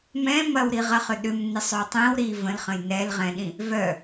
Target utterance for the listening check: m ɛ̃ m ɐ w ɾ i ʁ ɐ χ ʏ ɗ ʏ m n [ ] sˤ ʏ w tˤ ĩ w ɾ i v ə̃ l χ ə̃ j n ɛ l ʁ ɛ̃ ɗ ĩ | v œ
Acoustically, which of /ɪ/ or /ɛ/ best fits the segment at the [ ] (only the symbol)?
ɪ